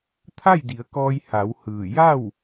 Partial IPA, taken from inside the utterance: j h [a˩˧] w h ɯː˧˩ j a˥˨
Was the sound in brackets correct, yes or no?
yes